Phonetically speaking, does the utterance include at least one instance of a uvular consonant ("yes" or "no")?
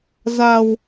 no